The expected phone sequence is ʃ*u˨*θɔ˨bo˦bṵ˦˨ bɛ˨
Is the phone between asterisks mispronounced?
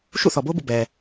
yes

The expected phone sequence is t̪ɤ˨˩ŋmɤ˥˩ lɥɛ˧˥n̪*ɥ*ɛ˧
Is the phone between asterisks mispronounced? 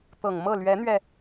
no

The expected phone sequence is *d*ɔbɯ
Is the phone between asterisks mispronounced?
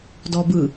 no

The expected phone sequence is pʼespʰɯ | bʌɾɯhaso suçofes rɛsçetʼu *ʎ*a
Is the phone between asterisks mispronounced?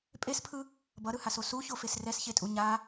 yes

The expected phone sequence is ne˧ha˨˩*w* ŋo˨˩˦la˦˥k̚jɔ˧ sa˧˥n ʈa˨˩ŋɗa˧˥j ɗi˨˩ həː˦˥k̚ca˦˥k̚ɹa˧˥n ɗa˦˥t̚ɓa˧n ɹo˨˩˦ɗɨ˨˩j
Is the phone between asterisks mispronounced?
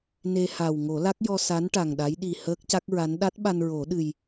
no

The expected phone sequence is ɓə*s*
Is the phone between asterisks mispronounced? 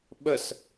no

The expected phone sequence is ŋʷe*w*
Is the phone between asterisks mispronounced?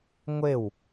no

